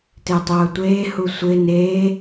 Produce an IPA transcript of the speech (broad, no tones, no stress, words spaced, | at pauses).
tɪːtˤʊːtʷeː husʷɪː neː